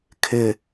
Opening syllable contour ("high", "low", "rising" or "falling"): low